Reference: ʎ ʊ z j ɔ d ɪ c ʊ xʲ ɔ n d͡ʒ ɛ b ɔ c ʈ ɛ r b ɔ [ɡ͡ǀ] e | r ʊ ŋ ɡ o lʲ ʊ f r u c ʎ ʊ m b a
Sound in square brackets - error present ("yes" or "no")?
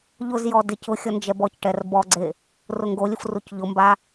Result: no